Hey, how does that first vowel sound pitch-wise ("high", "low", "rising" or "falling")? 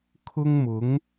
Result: high